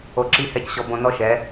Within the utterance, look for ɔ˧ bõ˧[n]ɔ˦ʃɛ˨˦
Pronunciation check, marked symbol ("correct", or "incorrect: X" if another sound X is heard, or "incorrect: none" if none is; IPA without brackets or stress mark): correct